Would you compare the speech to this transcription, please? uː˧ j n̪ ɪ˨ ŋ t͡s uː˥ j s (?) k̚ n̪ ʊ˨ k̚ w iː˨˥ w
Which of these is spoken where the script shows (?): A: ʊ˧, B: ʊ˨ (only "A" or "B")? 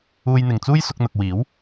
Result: A